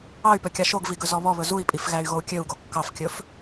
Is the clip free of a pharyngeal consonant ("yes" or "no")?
yes